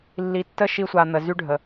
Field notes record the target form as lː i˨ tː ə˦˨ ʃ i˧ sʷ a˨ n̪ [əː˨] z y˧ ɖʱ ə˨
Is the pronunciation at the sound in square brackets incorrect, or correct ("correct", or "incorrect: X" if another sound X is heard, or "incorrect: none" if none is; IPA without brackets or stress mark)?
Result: incorrect: ə˨